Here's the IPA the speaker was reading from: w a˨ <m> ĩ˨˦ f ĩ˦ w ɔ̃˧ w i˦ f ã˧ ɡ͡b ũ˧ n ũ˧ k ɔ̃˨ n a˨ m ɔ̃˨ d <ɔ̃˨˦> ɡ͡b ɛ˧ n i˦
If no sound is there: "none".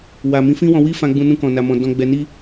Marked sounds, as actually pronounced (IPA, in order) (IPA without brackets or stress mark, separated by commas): m, ɔ̃˧